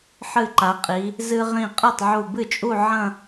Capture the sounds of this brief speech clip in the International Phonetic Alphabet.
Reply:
ħ ɨ˧˩ ǃ a˩˧ qʼ i˩˧ | z ɨ˧ ʁ ĩ˧˩ qʼ ɨ˥˩ tˤ ʕ u˧˩ b ɨ˥˩ t͡ʃʼ u˥˧ ʕ ɐ̃˥˧

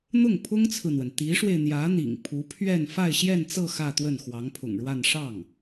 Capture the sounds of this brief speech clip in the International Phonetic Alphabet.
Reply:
n̪ ʊ˥˩ ŋ pʰ ʊ˥ ŋ t͡sʰ ɹ̩˨ n̪ w ə˩ n t̪ i˧˥ ʂ w e˧ ɪ̯ n̪ j ä˧˥ n̪ ḭ˨˩ ŋ pʰ u˧˥ pʰ ɥ ɛ˥˧ n f a˥˧ ɪ̯ ɕ j ɛ˥˧ n t͡s ɤ˥˧ x ä˥˧ t̪ w ə˥˩ n x w ɑ˧˥ ŋ pʰ ʊ̰˨˩ ŋ ɻ w a˥˧ n ʂ ɑ˥˩ ŋ

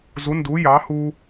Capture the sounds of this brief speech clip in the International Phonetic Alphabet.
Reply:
z u˧˥ n d u˧˥ j ɑ˧˥ h u˥

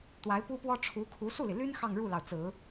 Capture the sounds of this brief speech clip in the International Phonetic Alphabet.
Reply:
t̪ w a˧˥ ɪ̯ p u˥ p w ɔ˥ ʈ͡ʂʰ u˧˥ kʰ u˧˥ s u˥˩ l i˩ l y˥ n x ɑ˥˧ ŋ ɻ u˥˩ l ɑ˩ ʊ̯ t͡s ɹ̩˨˩˦

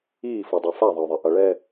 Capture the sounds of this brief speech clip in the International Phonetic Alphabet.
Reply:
iː f u dˤ a f a ðˤ ʌ ʊ̯ ðˤ e ʔ ʌ ɭ ɛ

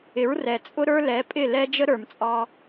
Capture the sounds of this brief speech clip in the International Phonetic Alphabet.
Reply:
ɪ˨˦ ɹ r ɛ˨ t͡sʼ ʊ˦ ɾ ə˞˦ l ɛ˨˦ pʼ ɪ˦˨ l ɛ˦ d͡ʒ ə˦ ɾ ə˞˨ m t͡sʼ ɑ˧

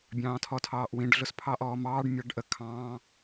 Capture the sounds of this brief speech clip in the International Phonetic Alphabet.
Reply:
bʲ ɑ̃ː tʰ ɔ tʰ ɑː ʔ w ĩ ɖ ɮ ʊ s pʰ ɑ ʔ ɔː m ɑː ɖ mʲ ɑ ɖ ʔ ə kʰ ɑ̃ː

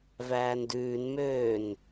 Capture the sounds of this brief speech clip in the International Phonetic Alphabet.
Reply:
v æː n d ʉː n m øː n

